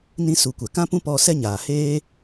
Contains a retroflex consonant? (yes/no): no